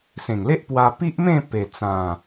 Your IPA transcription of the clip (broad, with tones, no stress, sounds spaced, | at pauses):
s ẽ˨˩ ŋ l e˦ ʔ p w a˧ p i˦ ʔ m ẽ˥˧ p e˨˩ t͡s ã˨˩